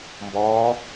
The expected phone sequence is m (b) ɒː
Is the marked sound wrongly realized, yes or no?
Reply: no